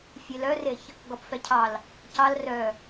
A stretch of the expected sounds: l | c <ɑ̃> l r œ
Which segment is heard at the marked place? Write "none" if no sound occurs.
ɑ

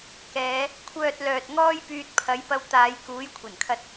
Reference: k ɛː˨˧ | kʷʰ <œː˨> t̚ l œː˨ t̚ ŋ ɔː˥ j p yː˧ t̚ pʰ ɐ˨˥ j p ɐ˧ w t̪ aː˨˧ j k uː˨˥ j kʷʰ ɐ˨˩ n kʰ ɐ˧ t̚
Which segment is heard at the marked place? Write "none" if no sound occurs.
œː˨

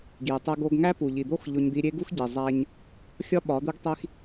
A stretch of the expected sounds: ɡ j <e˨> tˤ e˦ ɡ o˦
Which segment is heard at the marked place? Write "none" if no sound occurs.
i˨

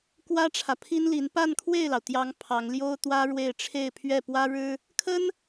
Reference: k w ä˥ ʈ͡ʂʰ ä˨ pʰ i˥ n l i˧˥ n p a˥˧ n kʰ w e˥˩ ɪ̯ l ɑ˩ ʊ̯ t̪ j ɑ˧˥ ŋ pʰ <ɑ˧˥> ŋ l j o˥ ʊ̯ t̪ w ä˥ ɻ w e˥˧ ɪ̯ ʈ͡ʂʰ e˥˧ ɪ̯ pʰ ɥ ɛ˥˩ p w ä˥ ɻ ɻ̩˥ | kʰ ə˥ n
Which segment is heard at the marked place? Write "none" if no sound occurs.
ɑ˧˥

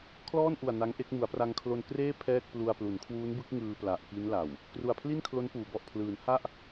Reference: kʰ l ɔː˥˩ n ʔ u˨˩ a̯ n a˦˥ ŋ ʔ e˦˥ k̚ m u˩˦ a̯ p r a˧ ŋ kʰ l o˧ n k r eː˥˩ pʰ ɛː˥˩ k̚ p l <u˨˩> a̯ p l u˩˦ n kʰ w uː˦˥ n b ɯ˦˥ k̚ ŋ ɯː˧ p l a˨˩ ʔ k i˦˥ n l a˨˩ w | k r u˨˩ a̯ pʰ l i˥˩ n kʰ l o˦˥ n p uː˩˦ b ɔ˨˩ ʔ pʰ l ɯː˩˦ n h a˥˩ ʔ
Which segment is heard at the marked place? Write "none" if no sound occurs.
u˧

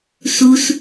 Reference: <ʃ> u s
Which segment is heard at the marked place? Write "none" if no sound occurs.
s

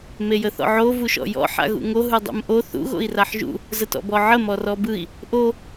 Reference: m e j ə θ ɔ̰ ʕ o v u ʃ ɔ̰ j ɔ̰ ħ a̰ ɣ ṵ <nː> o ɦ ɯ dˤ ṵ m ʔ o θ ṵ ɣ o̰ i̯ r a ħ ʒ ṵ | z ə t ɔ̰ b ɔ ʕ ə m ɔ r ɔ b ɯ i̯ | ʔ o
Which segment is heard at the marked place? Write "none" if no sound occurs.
ŋ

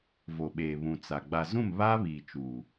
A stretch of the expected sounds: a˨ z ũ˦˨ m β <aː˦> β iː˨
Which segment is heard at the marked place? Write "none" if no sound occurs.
aː˦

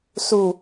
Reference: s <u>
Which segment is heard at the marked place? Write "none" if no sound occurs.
u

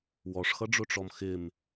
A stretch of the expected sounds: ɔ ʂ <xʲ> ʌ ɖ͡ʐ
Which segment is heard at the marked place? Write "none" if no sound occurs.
x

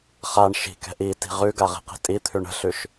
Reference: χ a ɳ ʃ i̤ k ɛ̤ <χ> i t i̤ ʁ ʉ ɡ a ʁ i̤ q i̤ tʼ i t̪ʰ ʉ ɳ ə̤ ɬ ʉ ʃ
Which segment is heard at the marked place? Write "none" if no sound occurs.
ʔ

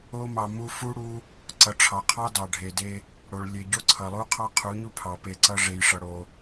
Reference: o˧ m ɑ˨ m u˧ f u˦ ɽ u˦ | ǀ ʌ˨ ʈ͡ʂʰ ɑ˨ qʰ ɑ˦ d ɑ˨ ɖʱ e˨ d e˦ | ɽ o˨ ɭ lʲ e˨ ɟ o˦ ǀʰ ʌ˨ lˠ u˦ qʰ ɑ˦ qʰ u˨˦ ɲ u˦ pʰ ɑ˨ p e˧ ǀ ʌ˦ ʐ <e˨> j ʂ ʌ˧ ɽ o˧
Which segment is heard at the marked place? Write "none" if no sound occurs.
e˧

